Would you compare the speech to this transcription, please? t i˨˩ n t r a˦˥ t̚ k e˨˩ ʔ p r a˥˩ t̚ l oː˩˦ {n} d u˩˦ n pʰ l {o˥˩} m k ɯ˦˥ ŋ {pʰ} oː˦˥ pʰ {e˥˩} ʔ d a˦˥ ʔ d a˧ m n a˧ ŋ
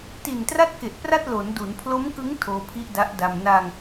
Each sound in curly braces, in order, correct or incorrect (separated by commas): correct, incorrect, incorrect, incorrect